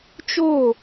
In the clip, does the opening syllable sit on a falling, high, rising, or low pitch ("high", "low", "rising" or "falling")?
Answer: falling